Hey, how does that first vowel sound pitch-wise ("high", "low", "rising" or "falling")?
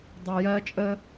low